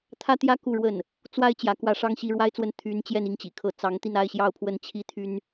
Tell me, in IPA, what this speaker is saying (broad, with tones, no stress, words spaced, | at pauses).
t̪ʰä˥t̪jä˥ ku˥˧ɻwə˥˩n | t͡swa˥ɪ̯ t͡ɕjä˧˥kwä˥˩ ʂɑ˥ŋɕi˧˥ɻwa˥ɪ̯t͡swə˥˩n t̪ʰy˧˥n t͡ɕjɛ˥˧n i˥˩ŋt͡ɕḭ˨˩kʰɤ˥˩ t͡sɑ˧˥ŋ t̪i˥˧na˥˧ɪ̯ɕjɑ˥˧ʊ̯pʰwə˥˩n t͡ɕʰi˥t̪ʰy˥n